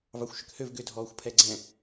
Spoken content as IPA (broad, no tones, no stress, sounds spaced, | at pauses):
v ɑ xʷ ʃ ʏ k h ø v ɡ ʏ dʱ ɔː xʷ pʰ ɛ ɡ͡ǀ ɛ̃